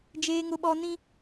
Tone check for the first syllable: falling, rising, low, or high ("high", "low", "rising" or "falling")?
high